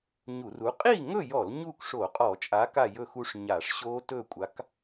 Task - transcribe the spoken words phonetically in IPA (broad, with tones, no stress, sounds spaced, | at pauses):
ɲ u˧˩˧ r u˨˥ qʼ i˥˨ ŋ ɵ˥˨ j ɔ˧˩˧ l ɲ u˥˨ k ʂ o˧˩˧ qʼ ɔ˧˩˧ t͡ʃʼ a˨˥ k a˥˨ j ɵ˥˨ x u˦˥ ʂ ɲ a˧˩˧ ʂ ɕ o˦˥ t ɵ˥˨ kʷʼ a˨˥ k